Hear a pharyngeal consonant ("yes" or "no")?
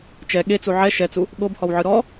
yes